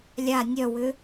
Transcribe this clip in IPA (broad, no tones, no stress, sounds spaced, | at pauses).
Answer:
lʲ a nʲ œ w ʏ